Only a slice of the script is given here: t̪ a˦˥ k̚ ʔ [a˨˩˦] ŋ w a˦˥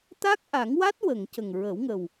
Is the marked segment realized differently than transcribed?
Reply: no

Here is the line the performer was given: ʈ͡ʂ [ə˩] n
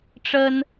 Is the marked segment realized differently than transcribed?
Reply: yes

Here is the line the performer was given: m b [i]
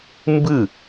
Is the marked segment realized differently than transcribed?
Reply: yes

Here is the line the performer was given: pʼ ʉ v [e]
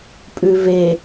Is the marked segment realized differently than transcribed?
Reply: no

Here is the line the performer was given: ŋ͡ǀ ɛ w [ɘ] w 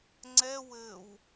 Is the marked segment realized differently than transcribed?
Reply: no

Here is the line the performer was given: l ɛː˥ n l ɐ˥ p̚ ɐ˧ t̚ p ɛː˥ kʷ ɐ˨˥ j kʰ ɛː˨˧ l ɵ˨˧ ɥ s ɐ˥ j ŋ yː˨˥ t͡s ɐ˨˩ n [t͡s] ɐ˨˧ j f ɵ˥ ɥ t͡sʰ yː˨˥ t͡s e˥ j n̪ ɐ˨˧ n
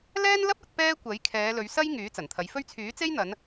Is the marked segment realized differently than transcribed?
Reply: yes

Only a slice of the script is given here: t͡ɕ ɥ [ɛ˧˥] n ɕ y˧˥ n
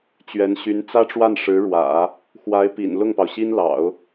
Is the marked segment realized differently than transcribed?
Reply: no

